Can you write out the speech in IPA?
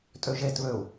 tʼ ø ʒ e t β ø u̯

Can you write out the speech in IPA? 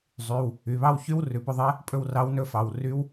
zˤ y˩˧˩ w | y˩˧˩ β ɑ˥˧ w ç y˦˥ w r ʉ˩˧˩ p ɵ˥˧ ðˤ ɛ˦˥ | pʼ ɵ˥˧ w r ɑ˦˥ w n ɵ˥˧ f ɑ˩˧˩ w r y˦˥ w

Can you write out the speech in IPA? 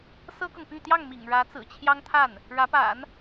s ɤ˥ k ɤ˨ ŋ p y˥˧ t̪ j ɑ˥˩ ŋ m ḭ˨˩ ŋ ɻ ä˧˥ t͡s ɹ̩˨˩ t͡ɕʰ j ɑ˥ ŋ t̪ʰ a˥˩ n | ɻ ä˧˥ p a̰˨˩˦ n

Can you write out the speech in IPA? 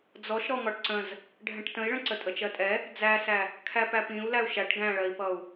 d͡z ɔ ʃ ɾ ɔ ŋ ɒ ʈ ǀ ə̃ z | ɖʱ ɛ̃ ʈ t ə̃ i̯ ɭ ə̃ ǀ ə tʼ ə t͡ʃ ɜ tʼ ɛ | d͡z æ s æ | kʰ æ p æ p ĩ u̯ l æ u̯ ʃ æ ʈ ɡ æ̃ ɭ ɜ i̯ p ʌ u̯

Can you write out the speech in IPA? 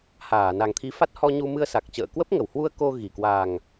h aː˧˩ n a˨˩ ŋ t̪ʰ i˨˦ f a˦˥ t̚ h ɔ˧ ɲ u˧ m ɨ˧ ə̯ s a˨˩ k̚ t͡ɕ ə̰ː˧˨ k w ə˦˥ p̚ ŋ ə˧˩ w h w u˧ ə̯ k o˧ ɣ i˧˩ k w a˨˩ ŋ

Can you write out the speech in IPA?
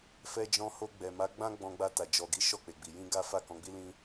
f ɛ˧ d͡ʒ ɔ̃˧ h o˧ ɡ͡b ɛ˨ m a˨˦ ɡ͡b ã˦ ɡ͡b ɔ̃˧ ɡ͡b a˧ t a˨ d͡ʒ ɔ˨ ɡ i˨˦ ʃ ɔ˦˨ k͡p e˨ ɡ͡b i˨ j ĩ˧ ɡ a˦ f a˦˨ k ɔ̃˨˦ ɡ͡b i˦ l ĩ˦

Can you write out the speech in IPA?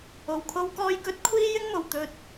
o˨˩ w kʰ o˥ w k ɔː˧ j k ɵ˨˥ t̚ kʷʰ iː˥ j ɪ˥ ŋ m o˨˩ w t̪ ɵ˧ t̚

